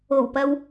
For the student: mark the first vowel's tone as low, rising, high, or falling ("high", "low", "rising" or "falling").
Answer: low